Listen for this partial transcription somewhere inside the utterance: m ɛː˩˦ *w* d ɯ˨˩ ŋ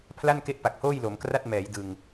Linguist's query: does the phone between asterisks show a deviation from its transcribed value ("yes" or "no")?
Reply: yes